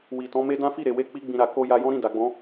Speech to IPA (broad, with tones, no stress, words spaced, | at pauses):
wi˨tɔ̃˨˦me˦ dã˦fi˦˨ɾe˨we˧ k͡pi˦ɡ͡bĩ˧ɾa˨ ko˧ ja˧ jɔ̃˦ɾĩ˦˨ da˨ɡ͡bɔ̃˨˦